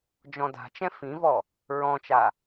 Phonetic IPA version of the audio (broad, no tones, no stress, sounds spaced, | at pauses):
d͡ʒ ɔ̃ d a̤ t͡ʃ ɛ̃ f ĩ v ɔ | ɹ ɔ̃ t͡ʃ a